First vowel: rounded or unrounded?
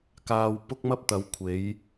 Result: unrounded